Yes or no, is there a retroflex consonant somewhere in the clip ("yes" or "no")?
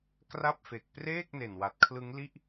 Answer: no